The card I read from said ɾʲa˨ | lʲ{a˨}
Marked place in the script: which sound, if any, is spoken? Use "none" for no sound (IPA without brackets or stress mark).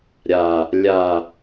a˨